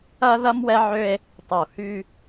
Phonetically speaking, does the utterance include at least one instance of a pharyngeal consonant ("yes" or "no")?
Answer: yes